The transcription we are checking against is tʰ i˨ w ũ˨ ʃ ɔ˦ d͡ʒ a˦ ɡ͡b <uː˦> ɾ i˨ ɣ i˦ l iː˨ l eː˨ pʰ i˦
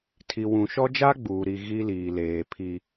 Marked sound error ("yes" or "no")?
yes